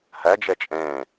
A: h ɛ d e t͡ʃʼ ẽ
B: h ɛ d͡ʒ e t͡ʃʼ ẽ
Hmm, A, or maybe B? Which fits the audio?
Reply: B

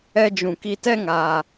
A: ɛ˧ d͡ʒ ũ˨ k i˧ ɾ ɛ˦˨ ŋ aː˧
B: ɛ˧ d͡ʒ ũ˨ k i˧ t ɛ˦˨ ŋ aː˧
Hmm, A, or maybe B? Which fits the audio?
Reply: B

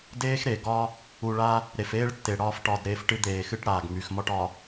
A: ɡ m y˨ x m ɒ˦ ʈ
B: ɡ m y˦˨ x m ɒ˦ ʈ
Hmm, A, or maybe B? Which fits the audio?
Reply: A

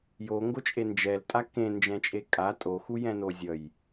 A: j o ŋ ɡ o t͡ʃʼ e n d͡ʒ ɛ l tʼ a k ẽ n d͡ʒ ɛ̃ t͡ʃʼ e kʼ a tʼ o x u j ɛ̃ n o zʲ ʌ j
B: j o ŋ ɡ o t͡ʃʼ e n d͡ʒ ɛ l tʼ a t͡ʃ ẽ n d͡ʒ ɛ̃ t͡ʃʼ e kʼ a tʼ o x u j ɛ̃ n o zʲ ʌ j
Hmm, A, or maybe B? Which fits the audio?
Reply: A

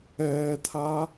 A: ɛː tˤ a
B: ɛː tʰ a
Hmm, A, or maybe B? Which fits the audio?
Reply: B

